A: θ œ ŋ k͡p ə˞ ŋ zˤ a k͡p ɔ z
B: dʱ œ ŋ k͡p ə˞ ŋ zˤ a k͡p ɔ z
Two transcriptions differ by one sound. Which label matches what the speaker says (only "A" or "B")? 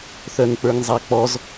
A